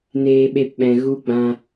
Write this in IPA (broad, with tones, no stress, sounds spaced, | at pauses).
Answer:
n eː˧ ɓ e˧ p ɓ ɛ̃˨ ɣ u˦ ɡ͡b ã˧